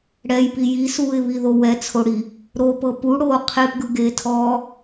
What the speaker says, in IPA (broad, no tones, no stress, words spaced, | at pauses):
ɽɛjpi jisuːɪ̯βiðo wɛt͡sʰoɽi | ɾopɤ puɽoː qʰepɡɯɡeːtʰɔː